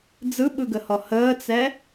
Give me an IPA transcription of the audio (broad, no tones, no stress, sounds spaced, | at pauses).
d͡z ɯ ɓ ɯ ɡ ə h ɔ h əː t͡s ɛ